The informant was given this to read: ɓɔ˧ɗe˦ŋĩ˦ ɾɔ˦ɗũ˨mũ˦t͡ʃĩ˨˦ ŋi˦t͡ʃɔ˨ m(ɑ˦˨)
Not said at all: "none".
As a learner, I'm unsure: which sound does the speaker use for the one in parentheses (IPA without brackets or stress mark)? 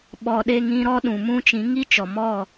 ɔ˦˨